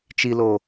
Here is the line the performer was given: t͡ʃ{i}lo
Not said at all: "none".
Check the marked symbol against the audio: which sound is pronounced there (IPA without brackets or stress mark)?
i